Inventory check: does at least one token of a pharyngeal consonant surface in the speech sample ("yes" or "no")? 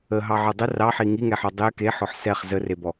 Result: yes